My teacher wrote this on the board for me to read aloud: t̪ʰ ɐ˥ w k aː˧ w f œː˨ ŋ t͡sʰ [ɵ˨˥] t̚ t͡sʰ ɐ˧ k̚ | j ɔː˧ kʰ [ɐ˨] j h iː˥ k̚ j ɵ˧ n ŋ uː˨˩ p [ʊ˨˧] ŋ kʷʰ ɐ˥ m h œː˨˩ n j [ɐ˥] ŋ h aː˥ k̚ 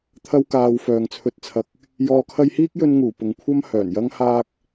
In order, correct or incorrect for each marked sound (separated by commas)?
incorrect, incorrect, incorrect, correct